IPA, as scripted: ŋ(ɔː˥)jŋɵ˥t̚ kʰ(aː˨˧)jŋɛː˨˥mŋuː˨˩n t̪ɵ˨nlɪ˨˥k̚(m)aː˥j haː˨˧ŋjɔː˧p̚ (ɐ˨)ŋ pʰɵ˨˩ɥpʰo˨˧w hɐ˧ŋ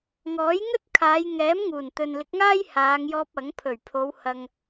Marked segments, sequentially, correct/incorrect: incorrect: ɔː˨˥, correct, incorrect: ŋ, incorrect: ɐ˨˥

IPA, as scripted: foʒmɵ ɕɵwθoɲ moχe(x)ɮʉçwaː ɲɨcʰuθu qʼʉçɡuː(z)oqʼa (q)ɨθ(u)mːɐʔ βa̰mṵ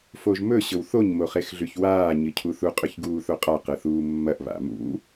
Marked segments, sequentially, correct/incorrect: correct, incorrect: θ, correct, incorrect: uː

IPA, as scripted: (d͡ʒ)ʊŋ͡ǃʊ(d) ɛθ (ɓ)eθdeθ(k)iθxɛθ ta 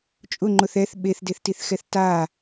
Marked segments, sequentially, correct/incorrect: incorrect: t͡ʃʼ, incorrect: θ, correct, incorrect: t

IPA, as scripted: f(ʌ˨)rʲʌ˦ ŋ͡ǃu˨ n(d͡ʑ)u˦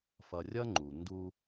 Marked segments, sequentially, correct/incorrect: correct, incorrect: d

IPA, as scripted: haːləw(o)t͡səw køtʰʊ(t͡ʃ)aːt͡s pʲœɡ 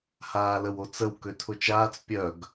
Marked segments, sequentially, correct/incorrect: correct, correct

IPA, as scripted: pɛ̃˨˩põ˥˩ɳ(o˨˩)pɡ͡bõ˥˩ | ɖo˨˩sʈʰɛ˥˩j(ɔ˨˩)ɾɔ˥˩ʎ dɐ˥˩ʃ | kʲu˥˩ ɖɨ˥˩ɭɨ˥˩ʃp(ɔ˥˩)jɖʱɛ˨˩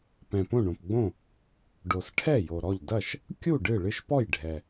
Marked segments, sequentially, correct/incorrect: incorrect: õ˨˩, incorrect: o˨˩, correct

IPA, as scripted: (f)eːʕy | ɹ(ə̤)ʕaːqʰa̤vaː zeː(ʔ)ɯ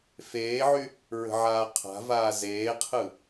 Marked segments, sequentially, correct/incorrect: correct, correct, incorrect: qʰ

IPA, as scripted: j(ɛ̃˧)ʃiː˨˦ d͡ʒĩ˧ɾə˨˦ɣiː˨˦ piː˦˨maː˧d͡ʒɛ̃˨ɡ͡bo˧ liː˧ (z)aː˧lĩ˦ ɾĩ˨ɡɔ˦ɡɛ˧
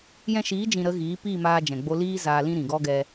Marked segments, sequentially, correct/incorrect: correct, correct

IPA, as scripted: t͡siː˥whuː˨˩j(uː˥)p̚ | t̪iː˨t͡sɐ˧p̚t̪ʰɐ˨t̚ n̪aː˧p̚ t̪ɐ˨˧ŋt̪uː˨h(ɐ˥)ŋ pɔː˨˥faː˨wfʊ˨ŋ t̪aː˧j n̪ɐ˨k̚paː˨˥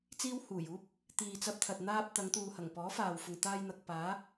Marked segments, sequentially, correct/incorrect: correct, incorrect: ɐ˨˩

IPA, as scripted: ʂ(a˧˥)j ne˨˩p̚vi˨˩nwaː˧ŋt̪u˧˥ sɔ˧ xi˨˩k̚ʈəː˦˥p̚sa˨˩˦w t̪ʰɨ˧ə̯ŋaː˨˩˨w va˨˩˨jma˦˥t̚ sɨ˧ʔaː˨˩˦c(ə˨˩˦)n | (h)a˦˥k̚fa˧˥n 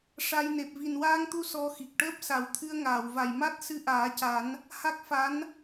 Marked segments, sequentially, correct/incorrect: incorrect: a˧, incorrect: a˨˩˦, correct

